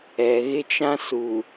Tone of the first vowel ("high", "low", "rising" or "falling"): low